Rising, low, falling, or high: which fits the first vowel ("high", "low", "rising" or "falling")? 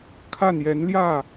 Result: falling